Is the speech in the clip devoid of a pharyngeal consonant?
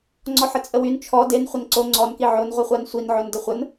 no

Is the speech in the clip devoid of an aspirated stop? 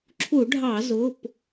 no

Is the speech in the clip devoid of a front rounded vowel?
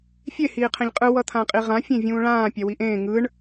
yes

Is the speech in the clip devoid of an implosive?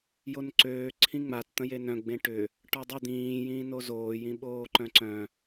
no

